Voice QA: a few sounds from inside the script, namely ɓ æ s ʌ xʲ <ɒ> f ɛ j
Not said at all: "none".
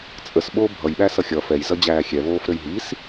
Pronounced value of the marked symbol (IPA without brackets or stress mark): ʌ